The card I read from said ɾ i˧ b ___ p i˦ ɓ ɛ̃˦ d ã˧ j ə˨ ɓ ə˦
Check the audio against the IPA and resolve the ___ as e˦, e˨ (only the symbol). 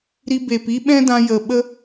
e˨